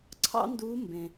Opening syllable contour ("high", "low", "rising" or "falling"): high